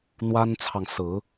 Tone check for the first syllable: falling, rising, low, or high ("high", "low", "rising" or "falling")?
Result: high